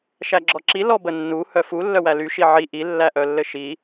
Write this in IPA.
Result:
ʃ æ ɡ͡ǁ ɔ ǁ i l ɔ b ə nː u h œ f u lː œ w æ l y ʃ i ʕ i ʔ i lː æ ʔ œ lː ɘ ʃ i

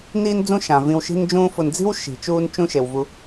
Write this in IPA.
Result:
n iː˦ n d͡z ũ˦ ʃ ã˩ v ĩ˨ w ʃ i̤˦ n d͡ʒ ũː˦ f ʊ˨ n d͡z i̤˦ w ʃ i̤˩ t͡ʃ uː˦ n t͡ʃ ũ˦ ʃ e˩ w v u˦

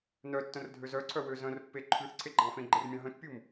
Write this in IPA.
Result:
n œ tː œ̃ r dʱ ø z œ ǀʰ œ w ø z œ̃ r pː e ǃʰ ʉ θ ǀʰ e ɡ͡ǃ ɑ̃ f ẽ ɡ͡ǃ e r mʲ ɑ̃ ɦ œ̃ t͡ʃ pʲ u m

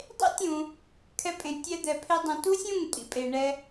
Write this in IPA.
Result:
dˤ ḛ˦ tʲ ũ˨ | kʰ ɛ˧ pʼ ẽ˨ tʲ ɛ˧ d̪ ɛ˨ pʰ e˧ dˤ ũ˨ t u˦ sʲ ũ˦˨ ŋ pʼ ḭ˧ pʼ e˨ ɳ ɛ˧

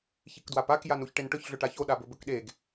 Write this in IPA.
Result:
ç i k d w a p a k j a n u ç ʈ e n ʈ ɵ ç ɮ ɵ ʈ a ç o ɗ a b ɵ b ɵ k ɗ e ɡ

